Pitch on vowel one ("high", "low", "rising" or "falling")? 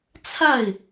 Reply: falling